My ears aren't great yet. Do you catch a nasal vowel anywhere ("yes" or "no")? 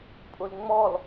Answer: no